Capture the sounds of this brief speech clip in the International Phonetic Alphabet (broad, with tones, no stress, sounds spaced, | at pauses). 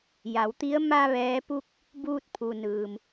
j a˩˧ w t̪ i˧˥ ə̯ m a˧ ʋ ɛː˧˥ p u˥˨ k̚ | b uː˧ t̚ pʰ u˩ n ɯː˩ m